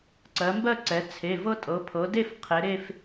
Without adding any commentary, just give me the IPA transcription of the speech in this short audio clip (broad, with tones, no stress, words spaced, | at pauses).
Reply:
ǀɜ˩˧mbɜ˥˧ǀɛ˩˧ t͡sʰe˩˧˩vɤ˥ tʼɤ˩˧pʰɤ˩˧de˥˧f qʰe˩˧ɾe˥˧f